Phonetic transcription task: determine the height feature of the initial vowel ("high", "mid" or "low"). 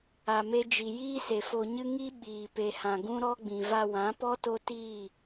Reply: low